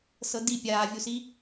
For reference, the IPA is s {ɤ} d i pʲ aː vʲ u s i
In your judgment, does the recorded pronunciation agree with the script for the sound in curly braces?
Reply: yes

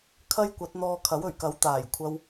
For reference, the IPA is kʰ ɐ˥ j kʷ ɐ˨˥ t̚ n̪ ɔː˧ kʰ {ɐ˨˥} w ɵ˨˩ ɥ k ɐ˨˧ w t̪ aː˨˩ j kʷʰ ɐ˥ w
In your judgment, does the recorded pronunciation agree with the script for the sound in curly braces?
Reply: yes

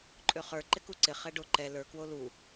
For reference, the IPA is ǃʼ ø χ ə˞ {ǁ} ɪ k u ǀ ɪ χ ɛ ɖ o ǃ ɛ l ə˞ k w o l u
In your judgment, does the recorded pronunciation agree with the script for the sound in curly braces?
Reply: no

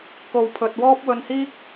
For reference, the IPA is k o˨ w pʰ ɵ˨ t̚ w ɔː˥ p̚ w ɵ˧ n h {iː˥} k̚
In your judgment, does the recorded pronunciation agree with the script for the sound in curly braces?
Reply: yes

